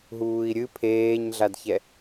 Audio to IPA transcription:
ɦ uː i̯ ɾʲ ɨ pʰ eː ɲ ɮ a d ç ɛ

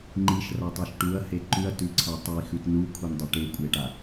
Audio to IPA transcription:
ŋ͡ǃ i ʃ r a tˤ e ʃ ʈ u ɐ̯ h e ǃ ʉ ɐ̯ t ʉ ǀʰ a tˤ i x ʉ t n u kʷʰ i n dˤ ɵ ʈ e kʷʼ e ʈ a

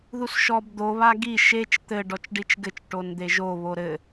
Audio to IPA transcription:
ð u s ʃ ɔ b d̪ o β a ɡ i ʃ e t͡ʃ t̪ ɘ ɖ ɔ t͡ʃ ɖ i t͡ʃ ɡ ɘ t͡ʃ ʈ o n d̪ e ʒ o β o ɾ ɘ

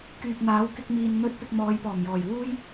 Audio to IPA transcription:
k yː˨ p̚ n̪ aː˨˥ w k ɪ˧ k̚ m iː˨ n n̪ ɵ˥ t̚ p ɪ˧ k̚ m ɔː˨˧ j p ɔː˨˩ m j ɔː˨˩ j w uː˥ j

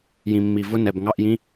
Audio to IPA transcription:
j ĩ˨ mː i˨ v ʊ˧˥˧ n ɛ˨ b ŋ ɑ˧˥˧ ʔ j ĩ˧˥˧

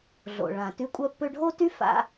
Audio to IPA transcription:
ɮ o̰˩ ɭ ã˩ t y˧ kʷʼ œ˧ pː ø˧ ɖʱ o˥ t y˥ f a̰˧

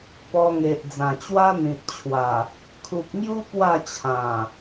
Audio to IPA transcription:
p ɔ˧ ŋ e˨ ʔ d͡z ã˨˩ t͡ɕ w a˦ n̪ ĩ˨ t̚ t͡ɕʰ w a˨˩ | kʰ u˨ k̚ ŋ j u˦ p w a˥˧ t͡ɕʰ ã˨˩

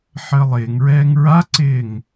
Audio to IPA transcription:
ħ əː lˠ ɪː ŋ ɹ ɛː ŋ ɹ a ǀ ɪː ŋ

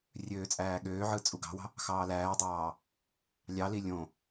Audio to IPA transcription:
rʲ øː t͡sʼ æː ɠ øː ʕ ɯ t͡sʼ u ɡ ɑ̤ w ɑ̤ | x ɑː l æː dˤ ɑː | lʲ ɑ l i lʲ õ

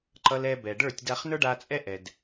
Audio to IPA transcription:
ǃ ʌ˧ l ɛ˧ b ɛ˨ ɖ ə˞˦˨ tʲ d a˧ χ n ə˞˦ ɖ a˧ t͡sʼ ɛ˦ ʔ ɛ˨ d

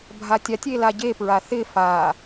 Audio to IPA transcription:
bʱ a tʲ a tʲ e l a ɟ e p ɹ a θ ɪ f a

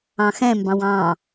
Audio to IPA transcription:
ɑ̃ x ɛ̃ m b ɑ̃ w ɑ̃

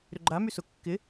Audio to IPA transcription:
ɾ ʏ ɡ͡ǃ a m y s ʊ kː ɪ

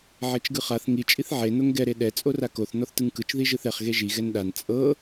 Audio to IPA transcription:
ʕ e t͡ʃ ɡ ɯ χ a θ ŋ i t͡ʃʼ i θ ʕ e n o ŋ ɡ ɛ ɾ e ɗ ɛ t͡sʼ o r a k o θ n ɔ θ t ɯ ŋ k ɯ t͡ʃ ð i ʒ ɯ θ ɛ χ ɣ e ʒ i ɣ ɛ n ɗ a n t͡sʼ ɤ

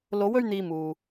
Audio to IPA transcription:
l o˨˧ w ɵ˧ ɥ n̪ iː˧ m uː˨

